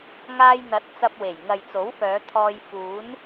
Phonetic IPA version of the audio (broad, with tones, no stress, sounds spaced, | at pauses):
ŋ aː˧ j n̪ ɐ˨˥ t̚ t͡s ɐ˧ p̚ w e˨˩ j ŋ ɐ˨ j t͡s o˨˥ w f œː˨˧ t̪ʰ ɔː˧ j f uː˨˥ n